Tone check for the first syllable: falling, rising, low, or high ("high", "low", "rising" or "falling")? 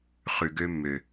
low